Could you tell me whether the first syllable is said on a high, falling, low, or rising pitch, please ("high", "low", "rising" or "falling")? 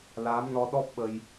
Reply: rising